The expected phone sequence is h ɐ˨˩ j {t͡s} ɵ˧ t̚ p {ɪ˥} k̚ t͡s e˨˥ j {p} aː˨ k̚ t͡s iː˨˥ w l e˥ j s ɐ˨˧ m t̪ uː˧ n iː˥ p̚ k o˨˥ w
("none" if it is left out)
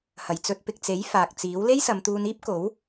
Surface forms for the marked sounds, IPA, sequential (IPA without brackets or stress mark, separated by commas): t͡s, ɪ˨, f